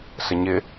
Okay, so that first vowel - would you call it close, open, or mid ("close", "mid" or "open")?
mid